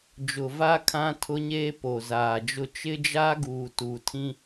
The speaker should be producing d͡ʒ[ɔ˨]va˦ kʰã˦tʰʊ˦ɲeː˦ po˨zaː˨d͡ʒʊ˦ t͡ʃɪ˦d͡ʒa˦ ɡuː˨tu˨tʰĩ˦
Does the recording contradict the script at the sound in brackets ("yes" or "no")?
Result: yes